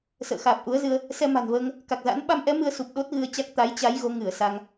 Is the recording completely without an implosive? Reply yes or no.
no